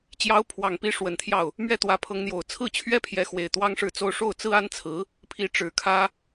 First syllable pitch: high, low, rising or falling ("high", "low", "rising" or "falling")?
rising